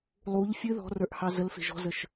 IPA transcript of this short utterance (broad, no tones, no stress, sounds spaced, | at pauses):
lˠ u ʎ fʲ ɨ ð ɔ̤ r ə˞ ʔ h ɑ z ə l f e̤ ʒ ɔ̤ z ə ʃ